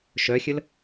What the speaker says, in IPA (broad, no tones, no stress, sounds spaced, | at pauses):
ʃ œ xʲ ə l